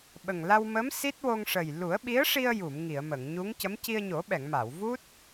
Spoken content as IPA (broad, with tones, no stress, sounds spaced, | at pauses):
ɓ ə˨˩ ŋ l a˧ w m ə˧˥ m s i˦˥ t̚ w o˧ ŋ ʂ ə˨˩ j l u˨˩˦ ə̯ ɓ i˧˥ ə̯ ʂ i˧ ə̯ j u˨˩˨ m ŋ i˨˩˨ ə̯ m ə˨˩˨ ŋ ɲ u˧˥ ŋ c ə˧˥ m c i˧ ə̯ ɲ o˨˩˦ ɓ ɛ˨˩˨ ŋ m a˨˩˨ w v u˦˥ t̚